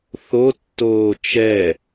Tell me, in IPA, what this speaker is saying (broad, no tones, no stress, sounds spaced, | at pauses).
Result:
θ o tː oː t͡ʃ ɛ